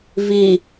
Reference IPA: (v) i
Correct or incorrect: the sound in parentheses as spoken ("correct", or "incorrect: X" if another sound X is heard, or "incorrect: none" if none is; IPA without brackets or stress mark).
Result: correct